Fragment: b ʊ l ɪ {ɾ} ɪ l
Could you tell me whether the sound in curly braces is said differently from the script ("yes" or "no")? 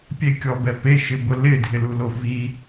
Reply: yes